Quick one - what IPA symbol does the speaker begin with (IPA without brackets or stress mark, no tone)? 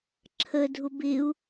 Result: ǁʰ